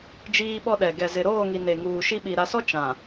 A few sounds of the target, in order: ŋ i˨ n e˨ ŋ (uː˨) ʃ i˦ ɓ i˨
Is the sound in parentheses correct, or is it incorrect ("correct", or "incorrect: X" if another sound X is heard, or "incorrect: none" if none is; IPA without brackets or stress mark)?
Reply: correct